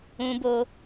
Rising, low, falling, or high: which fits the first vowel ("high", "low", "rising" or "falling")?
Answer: high